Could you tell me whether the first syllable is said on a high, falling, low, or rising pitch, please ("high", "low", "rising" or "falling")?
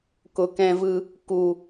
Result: low